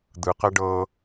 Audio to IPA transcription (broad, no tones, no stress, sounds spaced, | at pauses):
d̪ ɯ q ɛ ɖ ɤː